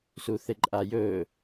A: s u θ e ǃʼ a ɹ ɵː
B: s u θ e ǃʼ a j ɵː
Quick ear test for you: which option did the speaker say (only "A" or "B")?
B